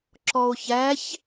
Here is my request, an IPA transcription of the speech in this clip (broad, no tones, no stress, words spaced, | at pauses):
ǁɔo̯çæç